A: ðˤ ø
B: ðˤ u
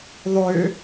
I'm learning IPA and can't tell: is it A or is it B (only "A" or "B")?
A